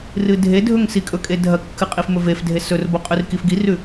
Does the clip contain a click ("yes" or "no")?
no